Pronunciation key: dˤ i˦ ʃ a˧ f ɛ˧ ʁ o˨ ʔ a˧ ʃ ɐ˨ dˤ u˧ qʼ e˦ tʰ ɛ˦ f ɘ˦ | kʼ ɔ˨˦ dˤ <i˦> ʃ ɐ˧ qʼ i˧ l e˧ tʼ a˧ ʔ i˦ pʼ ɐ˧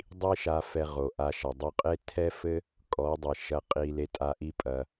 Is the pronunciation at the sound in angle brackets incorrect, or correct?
incorrect